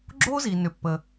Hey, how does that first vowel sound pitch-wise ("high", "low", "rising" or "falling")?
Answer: high